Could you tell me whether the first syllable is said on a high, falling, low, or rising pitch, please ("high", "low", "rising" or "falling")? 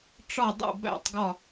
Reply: falling